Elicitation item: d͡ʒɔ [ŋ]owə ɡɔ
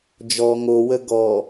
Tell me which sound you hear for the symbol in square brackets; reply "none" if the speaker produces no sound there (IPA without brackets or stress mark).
ŋ